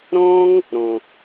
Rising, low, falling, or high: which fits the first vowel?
high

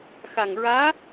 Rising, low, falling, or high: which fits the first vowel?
low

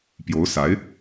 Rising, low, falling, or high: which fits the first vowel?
rising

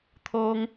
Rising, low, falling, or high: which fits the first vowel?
high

